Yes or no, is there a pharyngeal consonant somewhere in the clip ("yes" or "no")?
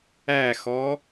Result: no